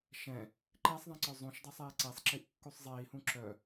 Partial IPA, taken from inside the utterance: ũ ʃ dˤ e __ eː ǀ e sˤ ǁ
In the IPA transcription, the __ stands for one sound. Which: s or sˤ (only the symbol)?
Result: sˤ